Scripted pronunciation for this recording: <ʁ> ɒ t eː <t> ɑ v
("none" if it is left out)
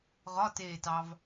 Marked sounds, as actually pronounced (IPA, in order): ʁ, t

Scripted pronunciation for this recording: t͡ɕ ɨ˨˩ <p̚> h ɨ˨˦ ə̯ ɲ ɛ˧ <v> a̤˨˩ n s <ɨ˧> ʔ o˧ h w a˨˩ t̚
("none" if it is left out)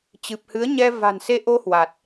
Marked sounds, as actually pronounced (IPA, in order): p̚, v, e˧

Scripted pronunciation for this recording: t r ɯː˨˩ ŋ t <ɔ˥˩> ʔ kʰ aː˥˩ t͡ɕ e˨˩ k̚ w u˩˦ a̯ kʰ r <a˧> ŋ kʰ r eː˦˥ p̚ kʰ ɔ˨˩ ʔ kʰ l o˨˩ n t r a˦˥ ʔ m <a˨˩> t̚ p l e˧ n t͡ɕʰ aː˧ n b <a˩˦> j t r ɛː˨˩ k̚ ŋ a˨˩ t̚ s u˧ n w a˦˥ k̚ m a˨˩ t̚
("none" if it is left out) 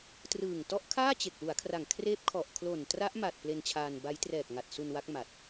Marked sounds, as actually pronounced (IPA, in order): ɔ˦˥, a˨˩, a˨˩, a˦˥

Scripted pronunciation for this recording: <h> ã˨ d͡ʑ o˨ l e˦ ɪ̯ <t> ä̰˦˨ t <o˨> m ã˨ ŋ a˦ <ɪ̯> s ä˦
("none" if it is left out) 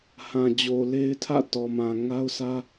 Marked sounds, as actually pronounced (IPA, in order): h, tʰ, ɔ˨, ʊ̯

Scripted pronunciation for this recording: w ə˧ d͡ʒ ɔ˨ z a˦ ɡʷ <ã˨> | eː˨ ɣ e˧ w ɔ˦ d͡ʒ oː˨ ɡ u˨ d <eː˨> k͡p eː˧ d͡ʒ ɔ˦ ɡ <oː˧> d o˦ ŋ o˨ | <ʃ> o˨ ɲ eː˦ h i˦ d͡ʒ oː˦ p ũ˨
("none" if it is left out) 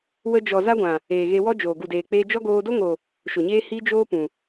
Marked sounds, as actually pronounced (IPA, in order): ã˨, eː˨, oː˧, ʃ

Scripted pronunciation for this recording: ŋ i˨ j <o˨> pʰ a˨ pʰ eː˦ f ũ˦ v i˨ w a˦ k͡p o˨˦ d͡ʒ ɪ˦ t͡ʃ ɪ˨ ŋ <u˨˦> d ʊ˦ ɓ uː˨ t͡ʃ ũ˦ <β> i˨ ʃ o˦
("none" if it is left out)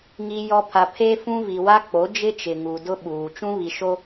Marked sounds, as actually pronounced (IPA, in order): ɔ˨, u˨, β

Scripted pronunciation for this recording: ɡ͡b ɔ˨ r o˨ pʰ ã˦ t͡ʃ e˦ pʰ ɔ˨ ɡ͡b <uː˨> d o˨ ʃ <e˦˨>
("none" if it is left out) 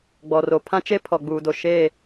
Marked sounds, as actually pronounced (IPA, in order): uː˨, e˦˨

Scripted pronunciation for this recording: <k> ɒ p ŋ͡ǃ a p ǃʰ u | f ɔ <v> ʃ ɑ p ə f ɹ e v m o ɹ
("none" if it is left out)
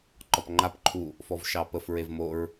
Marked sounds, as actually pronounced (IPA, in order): ǃ, v

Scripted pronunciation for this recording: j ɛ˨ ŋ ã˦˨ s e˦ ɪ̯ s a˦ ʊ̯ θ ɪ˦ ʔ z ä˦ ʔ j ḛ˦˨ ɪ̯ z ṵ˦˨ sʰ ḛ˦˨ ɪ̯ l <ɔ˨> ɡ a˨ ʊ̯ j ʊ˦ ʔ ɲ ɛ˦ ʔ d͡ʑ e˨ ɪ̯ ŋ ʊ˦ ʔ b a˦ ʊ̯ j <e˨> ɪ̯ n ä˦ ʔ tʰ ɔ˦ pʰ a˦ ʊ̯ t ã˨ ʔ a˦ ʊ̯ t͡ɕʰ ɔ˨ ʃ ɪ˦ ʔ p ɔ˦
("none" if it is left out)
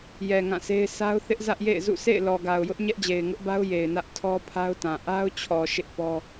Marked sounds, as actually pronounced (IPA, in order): ɔ˨, e˨

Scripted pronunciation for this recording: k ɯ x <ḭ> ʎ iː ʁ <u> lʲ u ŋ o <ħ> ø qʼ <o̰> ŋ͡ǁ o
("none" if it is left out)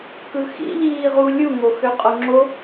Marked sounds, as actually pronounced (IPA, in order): ḭ, u, x, o

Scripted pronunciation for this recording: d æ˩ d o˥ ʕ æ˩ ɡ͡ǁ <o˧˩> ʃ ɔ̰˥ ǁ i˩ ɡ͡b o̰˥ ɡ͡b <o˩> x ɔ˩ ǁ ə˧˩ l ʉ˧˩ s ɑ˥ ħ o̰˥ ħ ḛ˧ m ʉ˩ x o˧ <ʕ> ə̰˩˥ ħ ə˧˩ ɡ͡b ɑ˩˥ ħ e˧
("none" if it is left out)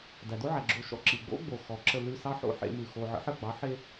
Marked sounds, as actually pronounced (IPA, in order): o˧˩, o˩, ʕ

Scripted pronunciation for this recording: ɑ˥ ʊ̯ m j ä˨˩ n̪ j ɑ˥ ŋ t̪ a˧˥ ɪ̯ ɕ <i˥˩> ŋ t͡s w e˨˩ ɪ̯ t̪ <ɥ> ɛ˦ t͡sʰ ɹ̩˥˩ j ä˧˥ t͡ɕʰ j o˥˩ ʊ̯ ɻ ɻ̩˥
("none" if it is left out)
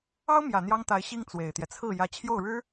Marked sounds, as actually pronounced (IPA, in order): i˥, j

